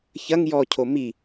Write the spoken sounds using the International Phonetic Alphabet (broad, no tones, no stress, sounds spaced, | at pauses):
ç ɐ ŋ j ɔ cʰ o m i